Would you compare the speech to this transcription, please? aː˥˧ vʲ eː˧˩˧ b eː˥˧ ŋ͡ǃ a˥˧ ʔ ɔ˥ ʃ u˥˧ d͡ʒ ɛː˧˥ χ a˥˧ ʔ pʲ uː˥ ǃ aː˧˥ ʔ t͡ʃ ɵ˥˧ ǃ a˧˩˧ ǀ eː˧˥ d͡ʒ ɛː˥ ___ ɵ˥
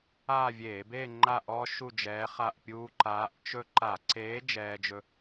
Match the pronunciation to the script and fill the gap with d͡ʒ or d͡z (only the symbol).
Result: d͡ʒ